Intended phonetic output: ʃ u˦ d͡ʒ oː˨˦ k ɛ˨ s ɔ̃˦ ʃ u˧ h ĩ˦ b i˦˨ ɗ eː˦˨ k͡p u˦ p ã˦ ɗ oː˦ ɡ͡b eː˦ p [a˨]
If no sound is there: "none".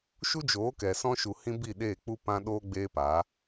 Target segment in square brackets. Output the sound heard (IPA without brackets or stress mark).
a˨˦